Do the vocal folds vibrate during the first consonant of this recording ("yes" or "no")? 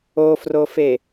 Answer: no